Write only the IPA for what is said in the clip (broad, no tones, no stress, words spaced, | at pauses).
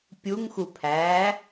pʲuŋxupʰæː